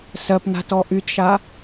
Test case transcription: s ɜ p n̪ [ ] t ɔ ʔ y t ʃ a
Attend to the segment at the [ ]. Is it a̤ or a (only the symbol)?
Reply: a̤